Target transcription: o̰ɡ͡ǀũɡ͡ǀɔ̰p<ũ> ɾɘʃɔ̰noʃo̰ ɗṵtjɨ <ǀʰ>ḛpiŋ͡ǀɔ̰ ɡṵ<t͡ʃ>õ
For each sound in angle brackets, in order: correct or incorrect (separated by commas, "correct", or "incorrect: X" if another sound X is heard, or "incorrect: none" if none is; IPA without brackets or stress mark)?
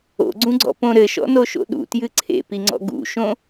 incorrect: õ, correct, incorrect: ʃ